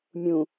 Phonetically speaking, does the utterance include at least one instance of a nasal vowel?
yes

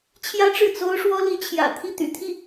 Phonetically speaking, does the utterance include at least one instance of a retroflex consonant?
yes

